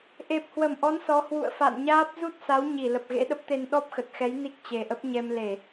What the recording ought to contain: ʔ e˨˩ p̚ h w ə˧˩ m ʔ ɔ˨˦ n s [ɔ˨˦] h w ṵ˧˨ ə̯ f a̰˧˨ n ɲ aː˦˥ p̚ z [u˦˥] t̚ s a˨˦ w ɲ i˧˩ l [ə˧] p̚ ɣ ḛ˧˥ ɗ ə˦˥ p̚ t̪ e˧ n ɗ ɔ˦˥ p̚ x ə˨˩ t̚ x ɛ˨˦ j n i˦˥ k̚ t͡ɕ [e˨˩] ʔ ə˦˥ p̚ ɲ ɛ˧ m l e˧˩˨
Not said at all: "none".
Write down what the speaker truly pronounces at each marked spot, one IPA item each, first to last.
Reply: ɔ˨˦, u˦˥, ə˨˩, e˨˩

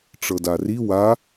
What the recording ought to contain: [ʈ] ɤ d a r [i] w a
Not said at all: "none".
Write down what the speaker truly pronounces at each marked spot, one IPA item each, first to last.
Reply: ʈ͡ʂ, i

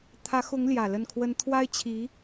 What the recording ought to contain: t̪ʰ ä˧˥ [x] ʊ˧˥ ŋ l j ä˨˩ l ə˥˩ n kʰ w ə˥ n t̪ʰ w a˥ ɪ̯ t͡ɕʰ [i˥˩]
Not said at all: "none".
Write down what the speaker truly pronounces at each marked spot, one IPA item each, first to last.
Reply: x, i˧˥

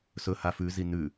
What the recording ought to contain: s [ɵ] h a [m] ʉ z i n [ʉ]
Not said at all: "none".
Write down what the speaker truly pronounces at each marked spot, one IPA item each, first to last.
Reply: ɵ, f, ʉ

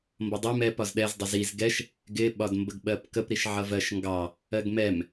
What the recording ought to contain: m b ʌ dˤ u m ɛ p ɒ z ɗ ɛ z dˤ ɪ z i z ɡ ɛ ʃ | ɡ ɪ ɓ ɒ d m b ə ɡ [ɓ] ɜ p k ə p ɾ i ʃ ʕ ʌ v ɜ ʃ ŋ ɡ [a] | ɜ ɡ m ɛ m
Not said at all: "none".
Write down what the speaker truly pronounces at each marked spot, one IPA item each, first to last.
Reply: ɓ, ɑ

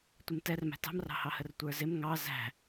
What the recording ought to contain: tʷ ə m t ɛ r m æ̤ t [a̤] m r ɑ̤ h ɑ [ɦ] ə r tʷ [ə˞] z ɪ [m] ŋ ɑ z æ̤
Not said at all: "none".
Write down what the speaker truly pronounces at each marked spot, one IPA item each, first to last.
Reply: ɑ̤, h, ə˞, m

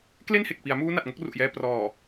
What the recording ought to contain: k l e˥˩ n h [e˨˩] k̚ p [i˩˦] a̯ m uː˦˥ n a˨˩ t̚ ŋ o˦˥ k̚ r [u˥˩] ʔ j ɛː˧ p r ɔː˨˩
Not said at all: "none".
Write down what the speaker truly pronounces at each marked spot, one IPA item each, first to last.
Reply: e˨˩, i˩˦, u˨˩

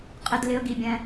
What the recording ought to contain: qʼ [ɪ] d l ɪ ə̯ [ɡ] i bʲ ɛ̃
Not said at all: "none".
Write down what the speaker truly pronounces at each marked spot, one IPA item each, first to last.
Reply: ɪ, ɡ

